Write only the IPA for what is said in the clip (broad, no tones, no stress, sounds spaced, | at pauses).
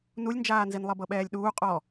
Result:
n u lʲ n d͡ʒ aː n z i n lˠ ɤ b ɤ ɓ ɛː lʲ ɗ uː qʼ ɔ